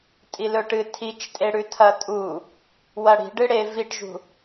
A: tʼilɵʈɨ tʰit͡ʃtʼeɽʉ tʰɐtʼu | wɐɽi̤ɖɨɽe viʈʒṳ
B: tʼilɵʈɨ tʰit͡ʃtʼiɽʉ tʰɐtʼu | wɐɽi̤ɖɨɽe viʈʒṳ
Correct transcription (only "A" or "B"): A